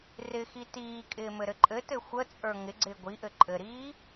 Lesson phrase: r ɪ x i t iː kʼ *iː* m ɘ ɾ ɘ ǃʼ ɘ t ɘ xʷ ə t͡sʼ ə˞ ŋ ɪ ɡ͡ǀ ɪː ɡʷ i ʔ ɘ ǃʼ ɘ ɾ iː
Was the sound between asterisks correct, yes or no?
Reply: no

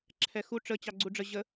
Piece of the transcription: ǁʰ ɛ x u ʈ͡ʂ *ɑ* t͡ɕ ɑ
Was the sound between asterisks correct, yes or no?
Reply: no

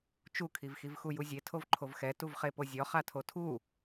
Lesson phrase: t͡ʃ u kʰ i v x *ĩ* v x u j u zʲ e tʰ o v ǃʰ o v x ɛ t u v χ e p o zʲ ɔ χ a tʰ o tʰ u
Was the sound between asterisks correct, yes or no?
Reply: no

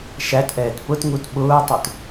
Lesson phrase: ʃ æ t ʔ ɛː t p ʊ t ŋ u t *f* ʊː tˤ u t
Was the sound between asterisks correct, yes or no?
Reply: no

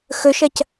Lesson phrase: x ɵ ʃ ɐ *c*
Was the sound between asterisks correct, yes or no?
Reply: yes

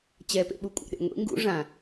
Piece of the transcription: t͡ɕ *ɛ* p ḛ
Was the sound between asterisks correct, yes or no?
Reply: yes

